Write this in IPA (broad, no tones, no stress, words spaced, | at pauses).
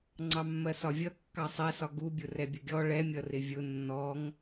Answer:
ŋ͡ǀɑmːɜsɒvʲʌ kːɑsˤɛsɒ ɡubʲʊ rɛbʲəɡʲɔ ɭɛmʲʌrɪ vʲʊ nːɔŋ